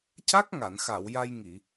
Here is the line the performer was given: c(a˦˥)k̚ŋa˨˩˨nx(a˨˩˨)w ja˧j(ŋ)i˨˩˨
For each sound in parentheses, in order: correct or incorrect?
correct, correct, correct

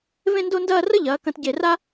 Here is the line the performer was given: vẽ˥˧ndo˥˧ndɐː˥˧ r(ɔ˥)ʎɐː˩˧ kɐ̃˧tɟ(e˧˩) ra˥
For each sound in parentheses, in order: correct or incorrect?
incorrect, correct

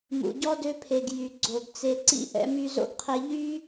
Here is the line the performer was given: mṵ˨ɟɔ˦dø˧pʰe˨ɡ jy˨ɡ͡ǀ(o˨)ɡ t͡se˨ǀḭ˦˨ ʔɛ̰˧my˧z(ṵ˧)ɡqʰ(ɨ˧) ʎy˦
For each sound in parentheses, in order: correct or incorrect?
correct, incorrect, incorrect

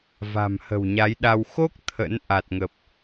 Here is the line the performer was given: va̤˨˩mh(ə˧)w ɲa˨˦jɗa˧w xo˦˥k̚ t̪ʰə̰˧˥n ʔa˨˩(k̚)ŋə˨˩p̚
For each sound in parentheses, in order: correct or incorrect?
incorrect, incorrect

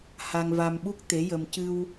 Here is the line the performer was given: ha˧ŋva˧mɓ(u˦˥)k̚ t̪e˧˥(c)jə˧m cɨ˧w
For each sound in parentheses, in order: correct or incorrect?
correct, incorrect

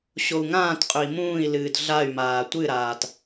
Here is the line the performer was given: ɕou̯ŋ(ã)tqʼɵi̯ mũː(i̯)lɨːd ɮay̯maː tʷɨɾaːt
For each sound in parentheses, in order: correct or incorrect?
incorrect, correct

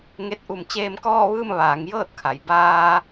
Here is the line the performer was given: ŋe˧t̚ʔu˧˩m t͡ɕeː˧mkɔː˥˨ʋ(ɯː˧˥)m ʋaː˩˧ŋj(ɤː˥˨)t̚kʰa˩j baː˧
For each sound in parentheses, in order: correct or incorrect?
incorrect, correct

